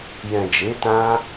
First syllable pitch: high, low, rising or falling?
low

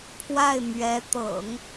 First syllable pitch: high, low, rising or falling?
falling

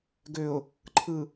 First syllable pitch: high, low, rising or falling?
low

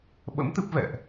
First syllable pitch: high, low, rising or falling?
rising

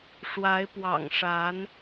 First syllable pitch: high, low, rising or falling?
rising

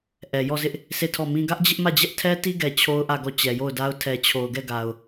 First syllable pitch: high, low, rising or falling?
low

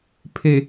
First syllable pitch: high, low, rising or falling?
low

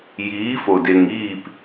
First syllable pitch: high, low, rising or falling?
rising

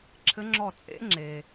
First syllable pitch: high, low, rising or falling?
rising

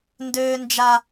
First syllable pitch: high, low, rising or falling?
high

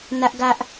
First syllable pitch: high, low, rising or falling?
high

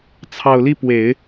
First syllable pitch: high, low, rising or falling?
low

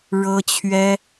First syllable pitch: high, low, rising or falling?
high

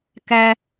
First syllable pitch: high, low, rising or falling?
high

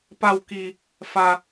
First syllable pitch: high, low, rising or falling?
low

